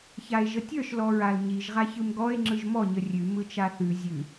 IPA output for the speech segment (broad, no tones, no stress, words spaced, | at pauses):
çae̯ʒətʲə˞ʃ lɔɹalɲiʒ ʁaçɯmɡɔe̯ ŋ͡ǁɯʒmɔ ɲərʲʉ mɯt͡ʃaθʉ zʲʉ